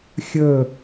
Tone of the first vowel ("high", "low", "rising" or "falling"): falling